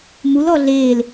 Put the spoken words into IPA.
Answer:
mul ɔɮeːl

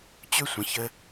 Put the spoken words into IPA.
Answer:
t͡ɕø˥sʷə̃˩çə˧

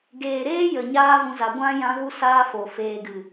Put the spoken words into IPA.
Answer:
ɡeː˨ɾeː˦ jə˨ɲaː˦vũ˧za˨ ɡʷã˦ jã˦ɣu˦saː˦ fo˨ feː˨ɡɨ˨

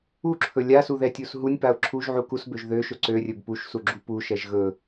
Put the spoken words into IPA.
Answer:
uǁʰɵ lʲasu ðɛtʲusɦunʲpaʊ̯ ǁʰuʒ ʕukusbøʒ ðøʃɵ ǀørʲɵb puʃsu ɡ͡ǁupuʃɛʒ ɣɵ

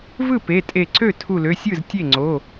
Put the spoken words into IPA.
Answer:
vɯ˥˩pe˩˧˩tʼe˧˩ǀø˥˩ tʰu˧˩lø˩˧˩sʲɯ˥˩z tʲe˥˩ŋ͡ǀo˩˧˩

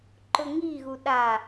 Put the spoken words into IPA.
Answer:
ǃʊŋiɣu ɗa

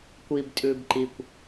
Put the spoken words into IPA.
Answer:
kʷib tʼʉːbǃikʷ

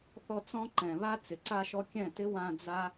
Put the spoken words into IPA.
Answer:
θɔ˧ t͡sɔ̃˦ ǃɛ̃˨βa˧ t͡sɪ˨ǀa˧ʃɔ˧ kʲɛ̃˦˨tɪ˦ wã˧ d͡za˦

